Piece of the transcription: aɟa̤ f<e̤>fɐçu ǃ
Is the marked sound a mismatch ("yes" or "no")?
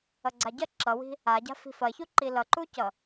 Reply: yes